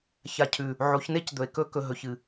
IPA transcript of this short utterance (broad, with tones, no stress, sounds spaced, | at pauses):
ç a˨ cʰ ʉ˨ | ʕ o˨˦ ç n e˦ c d̪ ɵ˨ e̯ k ɵ˦ k ɵ˨ ɦ ɵ˨ ç ɨ˨